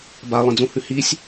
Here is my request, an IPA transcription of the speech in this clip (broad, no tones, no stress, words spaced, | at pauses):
balˠẽd͡zũhʉ hisʲ